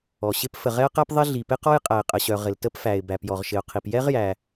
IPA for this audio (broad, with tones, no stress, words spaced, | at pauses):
ɔ˩ɕɪ˥p fə˩ʁɛ˥ə̯qæ˥p ðˤɪ˥ɮi˩ pɪ˥qɔ˥j qʼæ˩ɪ̯qʼə˩ɕœ˩ ʁɪ˩ltə˥pfæ˩ɪ̯ bæ˩pjɔ˩ʁʃɪ˩ʊ̯qʰi˩p jɛ˥ʁjæ˩